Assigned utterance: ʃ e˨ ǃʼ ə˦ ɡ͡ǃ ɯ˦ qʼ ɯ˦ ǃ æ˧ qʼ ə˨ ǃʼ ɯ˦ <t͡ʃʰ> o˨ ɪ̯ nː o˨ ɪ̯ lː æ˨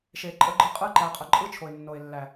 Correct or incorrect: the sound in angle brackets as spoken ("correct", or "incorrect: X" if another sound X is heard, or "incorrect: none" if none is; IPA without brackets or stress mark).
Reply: correct